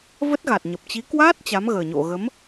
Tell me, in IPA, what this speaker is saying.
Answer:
v ə˦˥ t̚ ɣ a˨˩ t̚ ɲ ə˨˩ p̚ t͡ɕ i˨˦ k w aː˦˥ t̚ t͡ɕ a˨˦ m ɣ əː˨˩ ɲ o̰˧˨ ɣ ə˨˦ m

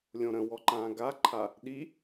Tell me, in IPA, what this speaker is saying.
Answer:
lʲ õ ɾ ə̃ w ɔ ǃ ãː ɡ a ǃʰ a | ɗ i

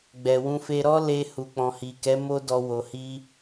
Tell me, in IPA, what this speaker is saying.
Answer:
ɡ͡b ɛ˨ w ũ˧ f e˧ ɾ ɔ˦ l e˧ h u˨ k͡p ɔ̃˨ h i˨ k ɛ˨˦ m o˦ d ɔ˧ w o˨ h i˧

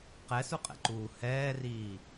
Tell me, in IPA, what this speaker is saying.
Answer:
q ɛ s u qʼ ɛ̰ ǃ uː h ɛː r iː

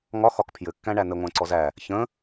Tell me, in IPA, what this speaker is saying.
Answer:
ŋ ɒ x ɒ k pʰ j ɘ kː æ̃ ɳ æ n ə ŋʷ æ̃ ǀ ɔ z æ | ç ə̃

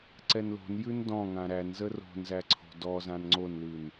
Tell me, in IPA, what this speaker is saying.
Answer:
ǀ ɛ n l o̤ n j ʉ n d ɔ̃ ŋ ã ɾ æ n z ə r o̤ n z æ ǀʰ o̤ d ɔ z ã n ŋ͡ǀ o n l ʉ n

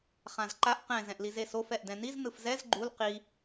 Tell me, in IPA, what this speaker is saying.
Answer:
χ ã z ǃ a ʔ q ɛ̃ z ɛ̃ ʔ l i z e s o f ɛ ʔ d ɛ̃ n i z n ɯ f z ɛ z ɡ͡ǃ u l q i

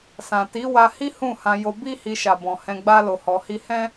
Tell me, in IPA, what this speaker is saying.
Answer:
s ã˨ t i˨˦ w a˧ h i˦ h ũ˦˨ h ã˧ j o˧ b i˦ h i˧ ʃ a˨ b ɔ̃˨ h ɛ̃˧ ɡ͡b a˦ l o˧ h ɔ˧ h i˦ h ɛ̃˦

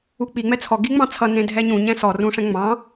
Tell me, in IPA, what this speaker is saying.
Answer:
u k͡p i ŋ͡m ɛ t͡sʰ ɔ ɡ i ŋ͡m ɑ̃ t͡sʰ ʌ n ẽ dʱ ɛ ɲ ũ ɲ ɛ̃ s ɔ r ũ ʂ ɛ̃ ŋ͡m ɑ̃

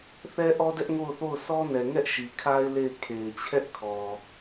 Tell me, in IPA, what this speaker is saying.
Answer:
θ ɛ˦ ʔ ɔ˦ d ɛ˦ ʔ ŋ o˦˨ ʊ̯ θ o˦˨ ʊ̯ s ɔ˦ n ɛ˨ ŋ ɛ˦ ʔ ʃ i˨ kʰ a˦ ɪ̯ l e˦˨ ɪ̯ kʰ e˨ ɪ̯ t͡ɕʰ ɛ˦ ʔ kʰ ɔ˨

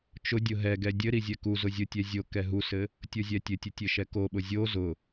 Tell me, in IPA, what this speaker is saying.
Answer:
t͡ʃ ʊ dʲ ʊ ɦ ɛ ɡ ɛ dʲ ɘ ɾ i zʲ ɛ k u z ʊ zʲ ʊ tʲ ɛ zʲ o k ɛ ɦ u s ɘ | tʲ o zʲ ɛ tʲ ɘ tʲ ʊ tʲ ɘ ʃ ɛ k o ɓ ʊ zʲ o z ʊ

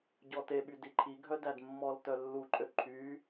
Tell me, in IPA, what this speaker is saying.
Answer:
ɟ ɔ t e ɓ y d i ǃʰ i ɡʱ œ d æ d mː ɔ l t œ lː u ǃʼ ø ǃʰ y

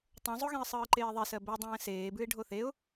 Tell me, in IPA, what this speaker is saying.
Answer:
tˤ õ zˤ o ɣ ɛ̃ ə̯ sˤ ɯː ǃ eː ðˤ e s ɜ b ɛ dˤ ɛ̃ː s eː b ʉ ɪ̯ ɖʱ o θ e ʊ̯

